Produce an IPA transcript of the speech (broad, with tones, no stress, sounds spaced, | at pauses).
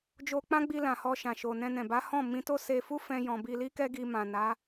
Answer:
d͡ʒ o˧ k͡p ã˦ ɡ͡b i˧ l ã˨ h ɔ˧ ʃ ã˨ ʃ o˨ n ɛ̃˧ n ɛ̃˨ b a˨˦ h ɔ̃˦˨ m ĩ˧ t o˦ s e˧ f u˦ f ɛ̃˧ j ɔ̃˨ b i˧ l i˦ k ɛ˦ ɡ i˧ m ã˨ n a˨˦